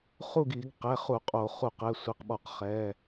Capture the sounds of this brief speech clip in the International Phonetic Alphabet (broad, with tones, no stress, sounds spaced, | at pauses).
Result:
χ u˥˨ ɡ i˧˩˧ ɡ q ɛ˩˧˩ χ u˧˩˧ qʼ o˧˩˧ χ u˧˩˧ q ɛ˩˧˩ sʷ i˩˧˩ q ɓ ɔ˧˩˧ q χ ɛ˩˧˩